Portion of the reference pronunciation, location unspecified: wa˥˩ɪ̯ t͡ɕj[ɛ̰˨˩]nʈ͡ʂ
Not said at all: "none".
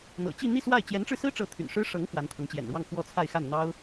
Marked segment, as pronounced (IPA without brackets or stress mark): ɛ˧˥